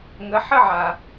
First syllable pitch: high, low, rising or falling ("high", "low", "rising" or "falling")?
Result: rising